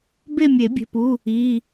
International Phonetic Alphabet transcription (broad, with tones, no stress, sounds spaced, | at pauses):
b e˥˧ mʲ e˨˩˦ bʲ e̤˩˧˩ p u˩˧˩ | i˩˧˩